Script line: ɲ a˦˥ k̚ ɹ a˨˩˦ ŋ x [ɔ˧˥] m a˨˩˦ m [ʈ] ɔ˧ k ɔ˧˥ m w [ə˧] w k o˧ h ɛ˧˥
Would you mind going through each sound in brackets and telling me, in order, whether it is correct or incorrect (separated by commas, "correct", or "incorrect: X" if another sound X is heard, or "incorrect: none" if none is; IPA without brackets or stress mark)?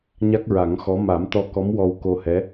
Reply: correct, incorrect: t̪, incorrect: ɔ˧